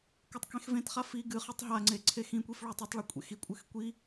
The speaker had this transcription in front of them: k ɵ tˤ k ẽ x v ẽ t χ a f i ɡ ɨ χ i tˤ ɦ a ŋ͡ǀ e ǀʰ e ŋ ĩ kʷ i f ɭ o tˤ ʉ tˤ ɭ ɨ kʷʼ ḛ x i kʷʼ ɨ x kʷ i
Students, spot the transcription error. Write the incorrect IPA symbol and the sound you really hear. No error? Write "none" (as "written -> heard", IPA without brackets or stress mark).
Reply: ŋ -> x